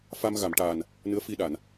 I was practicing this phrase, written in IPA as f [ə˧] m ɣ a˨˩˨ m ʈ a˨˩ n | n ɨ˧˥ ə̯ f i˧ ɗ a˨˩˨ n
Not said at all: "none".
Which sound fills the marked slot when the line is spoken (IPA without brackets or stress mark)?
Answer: a˧